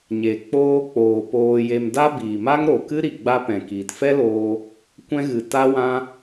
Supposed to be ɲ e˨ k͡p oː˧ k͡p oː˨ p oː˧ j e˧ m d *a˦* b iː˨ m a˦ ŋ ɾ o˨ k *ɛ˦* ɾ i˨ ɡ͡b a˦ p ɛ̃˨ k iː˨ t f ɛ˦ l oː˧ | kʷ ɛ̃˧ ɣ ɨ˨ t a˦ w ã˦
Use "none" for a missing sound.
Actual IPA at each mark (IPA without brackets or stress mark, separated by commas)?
a˦, ɨ˦